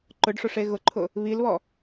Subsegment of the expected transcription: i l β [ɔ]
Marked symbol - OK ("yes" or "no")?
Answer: yes